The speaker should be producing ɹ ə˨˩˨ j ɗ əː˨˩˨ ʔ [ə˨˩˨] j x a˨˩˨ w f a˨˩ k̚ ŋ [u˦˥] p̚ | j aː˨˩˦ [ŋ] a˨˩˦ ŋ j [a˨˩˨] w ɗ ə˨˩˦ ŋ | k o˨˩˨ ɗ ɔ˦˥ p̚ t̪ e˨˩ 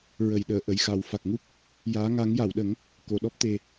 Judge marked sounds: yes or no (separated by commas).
yes, yes, yes, yes